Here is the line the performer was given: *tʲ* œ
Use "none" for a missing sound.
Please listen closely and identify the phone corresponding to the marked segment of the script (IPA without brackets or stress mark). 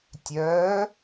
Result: tʲ